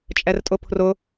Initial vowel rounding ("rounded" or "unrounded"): unrounded